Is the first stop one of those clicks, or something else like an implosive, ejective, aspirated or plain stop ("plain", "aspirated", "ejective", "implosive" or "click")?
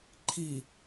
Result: click